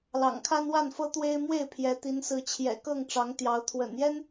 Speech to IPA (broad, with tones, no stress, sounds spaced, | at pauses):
l ɑ̰˨˩ ŋ kʰ a˦ n w a˥˨ n f ɤ˦ t̪ w e˦ ɪ̯ m w e˥˨ ɪ̯ pʰ j ɛ˨˦ t̪ i˨˦ n s ɹ̩˨˦ t͡ɕʰ j ɛ̰˨˩ k ɤ˥˨ ŋ ʈ͡ʂ ɑ˨˦ ŋ t̪ j ɑ˨˦ ʊ̯ t̪ʰ w ə̰˨˩ n j ɛ˦ n